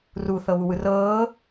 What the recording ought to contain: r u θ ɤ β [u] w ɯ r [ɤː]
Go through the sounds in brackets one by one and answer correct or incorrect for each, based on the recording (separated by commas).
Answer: correct, correct